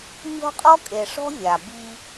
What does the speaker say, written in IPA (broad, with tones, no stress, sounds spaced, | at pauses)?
mʲ ɔ̤˦ qʼ ɔ˦ kʼ e˨ ʂ ɔ̤˦ vʲ a˨ b i˦